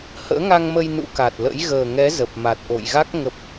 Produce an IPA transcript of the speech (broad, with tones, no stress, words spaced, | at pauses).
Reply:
hə̰ː˧˥ŋa˧ŋmə˧j nṵ˧˥ka˨˩t̚lə̰˧˥j ɣəː˨˩ŋɛ˨˦ zə˨˩p̚ma˨˩t̚ ʔo̰˧˨jɣa˦˥k̚ ŋə˦˥p̚